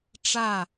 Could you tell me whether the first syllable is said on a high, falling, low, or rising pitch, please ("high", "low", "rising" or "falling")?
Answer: falling